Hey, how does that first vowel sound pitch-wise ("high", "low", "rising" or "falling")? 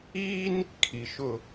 high